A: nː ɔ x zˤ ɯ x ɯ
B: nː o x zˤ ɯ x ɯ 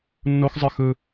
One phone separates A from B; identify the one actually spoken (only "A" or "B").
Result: B